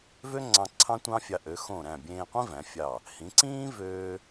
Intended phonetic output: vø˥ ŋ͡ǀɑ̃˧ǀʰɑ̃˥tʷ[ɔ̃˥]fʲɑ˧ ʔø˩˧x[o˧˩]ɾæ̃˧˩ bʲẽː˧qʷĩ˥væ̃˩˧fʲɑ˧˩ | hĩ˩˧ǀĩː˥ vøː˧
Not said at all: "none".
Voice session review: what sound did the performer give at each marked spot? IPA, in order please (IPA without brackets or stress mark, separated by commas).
ɑ̃˥, õ˧˩